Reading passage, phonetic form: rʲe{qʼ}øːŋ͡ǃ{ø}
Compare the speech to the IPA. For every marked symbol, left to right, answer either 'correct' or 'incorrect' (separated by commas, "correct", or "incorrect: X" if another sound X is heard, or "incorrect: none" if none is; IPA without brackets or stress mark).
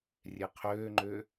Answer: incorrect: qʰ, correct